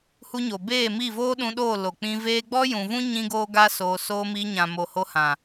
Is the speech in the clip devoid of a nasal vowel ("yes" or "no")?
no